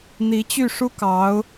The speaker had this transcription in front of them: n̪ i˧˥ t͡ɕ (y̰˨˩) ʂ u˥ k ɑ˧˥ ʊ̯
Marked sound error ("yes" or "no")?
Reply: yes